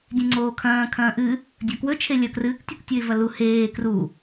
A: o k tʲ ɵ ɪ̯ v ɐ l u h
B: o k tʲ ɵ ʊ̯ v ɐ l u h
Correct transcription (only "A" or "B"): A